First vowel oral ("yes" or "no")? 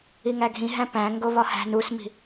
yes